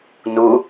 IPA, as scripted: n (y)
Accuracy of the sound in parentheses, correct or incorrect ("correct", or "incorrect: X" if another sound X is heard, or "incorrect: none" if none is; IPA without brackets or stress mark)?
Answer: incorrect: u